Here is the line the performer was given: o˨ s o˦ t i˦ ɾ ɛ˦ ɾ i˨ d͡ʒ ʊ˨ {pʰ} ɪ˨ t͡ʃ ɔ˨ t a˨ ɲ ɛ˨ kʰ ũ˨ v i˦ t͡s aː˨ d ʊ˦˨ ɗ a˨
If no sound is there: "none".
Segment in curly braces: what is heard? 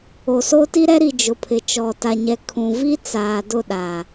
pʰ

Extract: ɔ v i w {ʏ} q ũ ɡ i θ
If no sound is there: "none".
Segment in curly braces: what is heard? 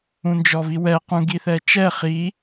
ɛ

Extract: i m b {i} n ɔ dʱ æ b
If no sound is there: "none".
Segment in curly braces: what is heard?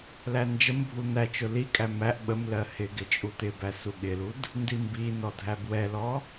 i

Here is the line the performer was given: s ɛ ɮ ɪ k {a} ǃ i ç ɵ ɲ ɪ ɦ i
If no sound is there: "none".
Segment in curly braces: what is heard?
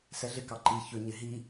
ɑ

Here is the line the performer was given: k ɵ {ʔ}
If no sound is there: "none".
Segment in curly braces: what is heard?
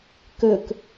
k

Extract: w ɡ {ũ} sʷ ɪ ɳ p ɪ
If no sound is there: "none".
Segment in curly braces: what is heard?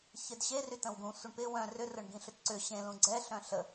ũ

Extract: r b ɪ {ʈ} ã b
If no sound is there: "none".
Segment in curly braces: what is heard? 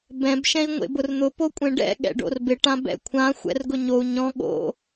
ʈ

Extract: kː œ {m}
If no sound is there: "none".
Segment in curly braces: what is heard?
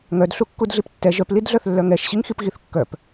p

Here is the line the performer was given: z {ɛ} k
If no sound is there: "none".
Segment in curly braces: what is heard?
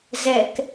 ɛ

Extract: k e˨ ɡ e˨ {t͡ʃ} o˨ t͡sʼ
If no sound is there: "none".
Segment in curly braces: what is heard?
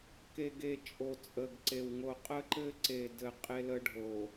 t͡ʃʼ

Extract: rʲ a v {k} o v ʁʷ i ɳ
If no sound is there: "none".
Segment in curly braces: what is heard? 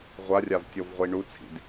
tʲ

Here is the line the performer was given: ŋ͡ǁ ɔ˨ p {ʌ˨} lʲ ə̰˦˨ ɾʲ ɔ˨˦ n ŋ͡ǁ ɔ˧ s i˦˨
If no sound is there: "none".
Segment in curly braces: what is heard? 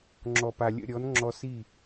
a˨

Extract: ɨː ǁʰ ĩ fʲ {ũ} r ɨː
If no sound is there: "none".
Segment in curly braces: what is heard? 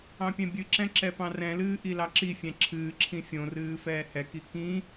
õ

